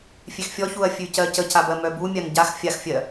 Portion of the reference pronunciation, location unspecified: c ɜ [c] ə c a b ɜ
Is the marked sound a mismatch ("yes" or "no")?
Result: no